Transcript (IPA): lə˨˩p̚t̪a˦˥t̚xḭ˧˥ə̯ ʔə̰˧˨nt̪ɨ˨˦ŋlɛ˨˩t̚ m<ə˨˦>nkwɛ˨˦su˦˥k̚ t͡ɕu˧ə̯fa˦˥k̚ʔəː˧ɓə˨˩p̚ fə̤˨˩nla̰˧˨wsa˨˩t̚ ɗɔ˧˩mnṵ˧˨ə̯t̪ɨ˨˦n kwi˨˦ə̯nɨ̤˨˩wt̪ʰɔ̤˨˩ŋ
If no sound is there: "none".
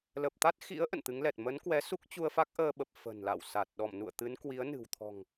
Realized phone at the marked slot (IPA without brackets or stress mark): ə˨˦